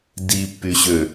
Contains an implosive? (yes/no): no